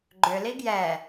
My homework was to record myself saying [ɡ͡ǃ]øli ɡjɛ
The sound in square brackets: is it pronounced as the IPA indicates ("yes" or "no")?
yes